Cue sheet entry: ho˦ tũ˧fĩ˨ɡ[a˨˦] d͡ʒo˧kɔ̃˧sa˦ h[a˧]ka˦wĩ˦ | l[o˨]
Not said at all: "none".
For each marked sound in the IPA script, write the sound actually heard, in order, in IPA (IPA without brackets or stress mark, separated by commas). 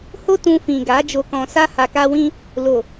a˨˦, a˧, o˨